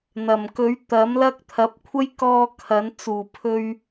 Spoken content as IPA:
n̪ ɐ˨˩ m k ɵ˨˥ ɥ t̪ ɐ˨˥ m l ɐ˥ k̚ t̪ʰ ɐ˨˥ p̚ kʷʰ ɐ˥ j k ɔː˧ kʰ ɐ˨˥ n t͡s uː˨˩ pʰ ɵ˧ ɥ

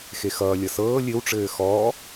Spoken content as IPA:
x e x ʌː lʲ ʌ s ɤː lʲ ɘ w ʈ͡ʂ ɘː x ɔː

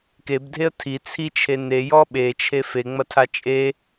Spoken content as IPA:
k e b dʱ e ə̯ tʰ i t͡sʰ i t͡ʃʰ e n e j ɔ ɓ e t͡ʃʰ e f e ŋ͡m ɐ tʰ a t͡ʃʼ e

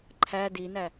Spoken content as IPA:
ǃʰ æ d i n æ

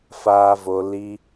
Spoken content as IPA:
f aː˦ v o˧ l i˧

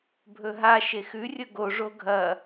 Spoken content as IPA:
bʱ ɵ ɦ a ʃ e x ʉ rʲ ɵ ɡ o ʐ o ɡʱ ɐ

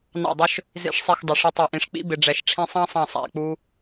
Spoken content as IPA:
n ɑ̰˧˩ dˤ ʊ˧ ʃ | z ḭ˧˩ ʂ sˤ i˧˩ x dˤ ə˧˩ ʂ ʌ˧ tˤ ɛ˧˩ ʔ ĩ˧˩ ʂ k͡p ḭ˦˥ b ɪ˧ ɖ͡ʐ ɛ˧˩ ʃ ʈ͡ʂʰ ĩ˧ sˤ ɑ̃˦˥ sˤ ɑ̃˧˩ sˤ æ̰˧˩ k͡p u˧

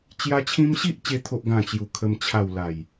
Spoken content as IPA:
t͡ɕ j a˦ t͡ɕʰ ĩ˦ m ɕ i˦ ʔ t͡ɕ e˧ t̪ʰ o˦ ʔ ɡ ã˥˧ t͡ɕ j u˧ kʰ ə˧ m t͡ɕʰ a˥˧ w l a˨˩ j

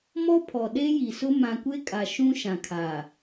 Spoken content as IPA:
m ɔ˦ pʰ ɔ˨ ɗ e˦ j i˨ s ʊ˦ m ã˨ kʷ e˦ kʼ a˨ ʃ ũ˦ ʃ ã˨ kʰ a˨

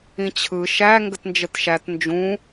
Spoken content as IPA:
ĩ t͡ɕʰ ɯ ʃ æ ŋ ɡ ə t n d͡ʒ ə t ʃ æ t n d͡ʒ ũ

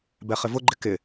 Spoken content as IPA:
b ɛ χ ɪ v ʊ ɡ͡ǃ ɪ k ɪ

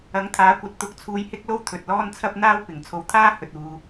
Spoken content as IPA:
ɐ˨˥ ŋ t̪ʰ aː˨˥ kʷ ɐ˨˥ t̚ t̪ ʊ˨˥ k̚ t͡sʰ uː˧ j h ɪ˥ k̚ l o˥ w t̪ʰ ɵ˨ t̚ l ɔː˥ n t͡sʰ ɐ˥ p̚ n̪ aː˥ w p ɪ˨˩ ŋ t͡sʰ o˨˧ w t̪ʰ aː˥ h ɵ˨ t̚ uː˨

